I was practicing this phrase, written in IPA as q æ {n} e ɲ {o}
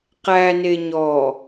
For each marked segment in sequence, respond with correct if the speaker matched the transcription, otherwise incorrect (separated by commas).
correct, incorrect